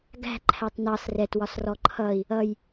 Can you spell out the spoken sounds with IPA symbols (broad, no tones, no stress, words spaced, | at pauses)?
ɡæ̤ ǃʰætˤnɑs rɛtwɒs rɔǃʰʌi̯ | ʌj